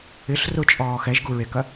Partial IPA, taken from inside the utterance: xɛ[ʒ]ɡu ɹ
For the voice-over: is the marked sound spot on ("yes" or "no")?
yes